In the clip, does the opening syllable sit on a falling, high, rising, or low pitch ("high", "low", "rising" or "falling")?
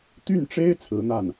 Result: falling